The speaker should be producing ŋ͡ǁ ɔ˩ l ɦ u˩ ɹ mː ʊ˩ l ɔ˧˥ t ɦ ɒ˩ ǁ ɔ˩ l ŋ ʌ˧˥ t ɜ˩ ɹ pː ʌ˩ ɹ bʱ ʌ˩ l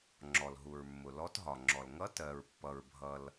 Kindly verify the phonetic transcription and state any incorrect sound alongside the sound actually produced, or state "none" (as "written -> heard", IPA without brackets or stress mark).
ǁ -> ŋ͡ǁ